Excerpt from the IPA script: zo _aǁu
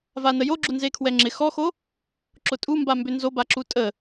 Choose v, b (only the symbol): b